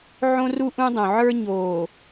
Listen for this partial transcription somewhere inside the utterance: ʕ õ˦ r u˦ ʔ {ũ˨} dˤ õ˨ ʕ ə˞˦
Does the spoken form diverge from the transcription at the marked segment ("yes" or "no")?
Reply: yes